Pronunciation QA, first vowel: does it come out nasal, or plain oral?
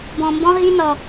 nasal